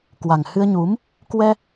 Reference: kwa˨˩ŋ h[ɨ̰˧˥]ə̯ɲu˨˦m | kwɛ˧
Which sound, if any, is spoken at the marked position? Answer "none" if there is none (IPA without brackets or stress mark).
ɨ˧